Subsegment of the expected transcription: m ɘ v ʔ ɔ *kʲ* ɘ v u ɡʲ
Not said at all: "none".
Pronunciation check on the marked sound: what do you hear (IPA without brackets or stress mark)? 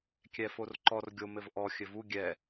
xʲ